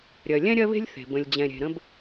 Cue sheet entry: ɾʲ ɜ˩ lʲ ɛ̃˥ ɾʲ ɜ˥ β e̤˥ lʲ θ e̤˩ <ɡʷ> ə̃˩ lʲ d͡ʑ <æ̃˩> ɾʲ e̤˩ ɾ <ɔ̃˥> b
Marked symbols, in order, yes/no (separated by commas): no, no, no